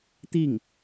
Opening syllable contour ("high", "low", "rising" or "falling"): falling